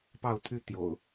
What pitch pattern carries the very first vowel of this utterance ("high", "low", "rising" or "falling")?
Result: falling